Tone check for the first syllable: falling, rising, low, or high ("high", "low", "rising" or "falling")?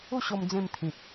falling